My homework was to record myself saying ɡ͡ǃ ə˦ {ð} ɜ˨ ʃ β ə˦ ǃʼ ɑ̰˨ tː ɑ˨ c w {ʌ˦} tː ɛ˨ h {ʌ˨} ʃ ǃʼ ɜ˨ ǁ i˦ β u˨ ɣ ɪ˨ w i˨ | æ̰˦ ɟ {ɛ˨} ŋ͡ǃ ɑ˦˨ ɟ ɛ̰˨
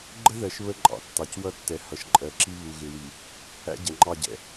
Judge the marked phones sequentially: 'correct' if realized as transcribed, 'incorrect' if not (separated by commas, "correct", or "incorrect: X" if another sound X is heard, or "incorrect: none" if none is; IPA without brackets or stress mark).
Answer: correct, correct, correct, correct